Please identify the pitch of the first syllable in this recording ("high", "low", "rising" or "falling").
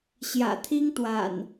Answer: low